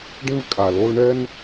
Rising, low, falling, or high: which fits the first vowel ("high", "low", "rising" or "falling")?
high